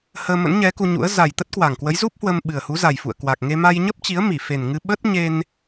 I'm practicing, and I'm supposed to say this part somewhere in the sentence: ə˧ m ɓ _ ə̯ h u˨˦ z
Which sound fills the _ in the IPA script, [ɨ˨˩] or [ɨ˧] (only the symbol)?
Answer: ɨ˨˩